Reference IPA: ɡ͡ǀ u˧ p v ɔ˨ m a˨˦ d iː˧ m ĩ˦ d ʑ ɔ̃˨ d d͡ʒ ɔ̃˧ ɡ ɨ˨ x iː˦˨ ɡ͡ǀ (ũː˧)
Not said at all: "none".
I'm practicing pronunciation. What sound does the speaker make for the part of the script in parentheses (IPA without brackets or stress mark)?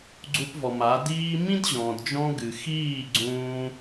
ũː˧